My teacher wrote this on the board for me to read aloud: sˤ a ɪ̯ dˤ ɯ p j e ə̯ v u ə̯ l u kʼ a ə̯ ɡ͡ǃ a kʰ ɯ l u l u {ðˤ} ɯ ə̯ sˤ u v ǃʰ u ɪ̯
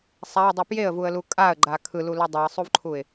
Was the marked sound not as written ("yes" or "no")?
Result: yes